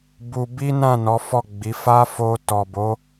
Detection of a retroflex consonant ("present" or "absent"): absent